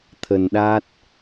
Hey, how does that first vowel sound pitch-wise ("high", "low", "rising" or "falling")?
low